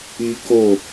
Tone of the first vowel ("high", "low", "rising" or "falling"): high